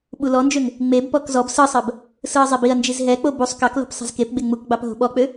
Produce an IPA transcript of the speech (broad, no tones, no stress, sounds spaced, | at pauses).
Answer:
ɓ u l ɔ n d͡ʒ ø ŋ | ŋ͡m e b p ɔ k z ɔ b s ɯ sˤ ɜ b | s ɯ ɐ̯ zˤ i b i ɐ̯ n d͡ʒ i z ɦ ɛ k͡p o b u sˤ k ɑ k l o̤ p sˤ e̤ z k e p ɡ͡b e ŋ͡m u k ɡ͡b ɑ p ɦ o̤ ɓ ɔ k͡p ø